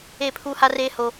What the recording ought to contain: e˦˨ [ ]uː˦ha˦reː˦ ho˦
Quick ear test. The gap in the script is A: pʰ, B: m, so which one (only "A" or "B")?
A